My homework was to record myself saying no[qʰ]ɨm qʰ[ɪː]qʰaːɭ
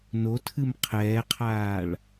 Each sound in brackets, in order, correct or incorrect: incorrect, incorrect

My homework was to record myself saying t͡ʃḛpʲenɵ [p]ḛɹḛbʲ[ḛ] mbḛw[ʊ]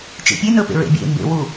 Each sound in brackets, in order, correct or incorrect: correct, correct, incorrect

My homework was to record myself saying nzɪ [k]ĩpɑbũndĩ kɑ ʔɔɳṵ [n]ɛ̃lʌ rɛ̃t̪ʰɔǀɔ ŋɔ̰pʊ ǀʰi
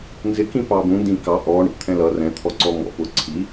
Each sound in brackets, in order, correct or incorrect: correct, incorrect

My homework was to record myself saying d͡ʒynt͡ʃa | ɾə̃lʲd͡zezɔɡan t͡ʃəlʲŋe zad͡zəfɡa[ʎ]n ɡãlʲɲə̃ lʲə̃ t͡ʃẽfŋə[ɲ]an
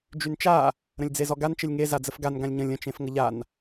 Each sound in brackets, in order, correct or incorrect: incorrect, incorrect

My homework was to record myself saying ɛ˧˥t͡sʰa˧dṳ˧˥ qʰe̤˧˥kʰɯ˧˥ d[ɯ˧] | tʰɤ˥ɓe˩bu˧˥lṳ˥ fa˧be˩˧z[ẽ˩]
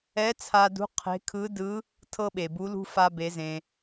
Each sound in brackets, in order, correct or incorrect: incorrect, correct

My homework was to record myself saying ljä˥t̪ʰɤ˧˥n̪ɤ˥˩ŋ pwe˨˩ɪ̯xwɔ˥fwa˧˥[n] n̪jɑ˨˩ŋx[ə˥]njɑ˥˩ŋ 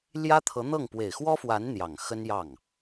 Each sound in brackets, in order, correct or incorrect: correct, correct

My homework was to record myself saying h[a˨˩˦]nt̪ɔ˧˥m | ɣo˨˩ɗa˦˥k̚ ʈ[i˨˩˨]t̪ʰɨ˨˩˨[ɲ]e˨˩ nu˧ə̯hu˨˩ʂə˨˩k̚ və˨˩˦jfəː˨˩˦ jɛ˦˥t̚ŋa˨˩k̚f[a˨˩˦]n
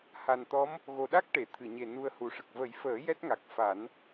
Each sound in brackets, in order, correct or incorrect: incorrect, incorrect, correct, correct

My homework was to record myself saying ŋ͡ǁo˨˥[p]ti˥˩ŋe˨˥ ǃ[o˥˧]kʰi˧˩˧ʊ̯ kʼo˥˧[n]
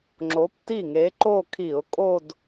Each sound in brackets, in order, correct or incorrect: correct, correct, incorrect

